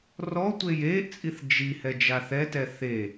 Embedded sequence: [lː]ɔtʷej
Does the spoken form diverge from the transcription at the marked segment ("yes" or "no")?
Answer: yes